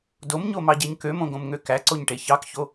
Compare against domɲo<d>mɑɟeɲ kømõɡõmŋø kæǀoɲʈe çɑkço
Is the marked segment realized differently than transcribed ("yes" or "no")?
yes